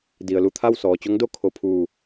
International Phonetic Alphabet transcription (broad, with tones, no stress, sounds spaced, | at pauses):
d i˩ ə̯ l u˥˨ t̪ʰ a˥˨ w s ɔː˩ t͡ɕ o˧˥ ŋ d o˥˨ kʰ o˧˩ pʰ uː˧˩